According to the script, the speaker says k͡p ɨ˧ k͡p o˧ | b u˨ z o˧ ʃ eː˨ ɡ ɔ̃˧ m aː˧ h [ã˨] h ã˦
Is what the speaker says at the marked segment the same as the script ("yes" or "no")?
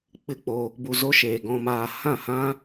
no